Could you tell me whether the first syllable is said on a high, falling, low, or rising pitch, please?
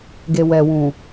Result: low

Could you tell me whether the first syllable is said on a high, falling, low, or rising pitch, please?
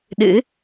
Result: rising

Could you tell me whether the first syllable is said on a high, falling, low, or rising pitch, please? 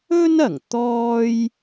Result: high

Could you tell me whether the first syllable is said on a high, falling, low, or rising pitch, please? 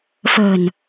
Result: low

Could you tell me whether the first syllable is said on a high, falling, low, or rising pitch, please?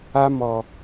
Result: high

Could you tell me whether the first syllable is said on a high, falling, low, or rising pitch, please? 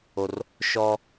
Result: low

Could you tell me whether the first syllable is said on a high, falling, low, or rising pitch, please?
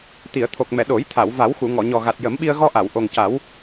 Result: low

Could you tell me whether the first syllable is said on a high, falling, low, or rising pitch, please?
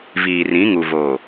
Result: low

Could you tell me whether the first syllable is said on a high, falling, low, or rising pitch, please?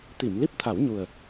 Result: low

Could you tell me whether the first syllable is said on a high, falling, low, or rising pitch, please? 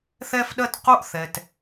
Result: high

